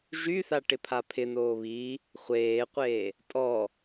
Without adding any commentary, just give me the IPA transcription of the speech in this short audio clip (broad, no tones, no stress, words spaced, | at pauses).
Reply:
ʒyθaʈɪpʰa pʰɪnoː βiː | χʷeːqʷeː | tʼɔ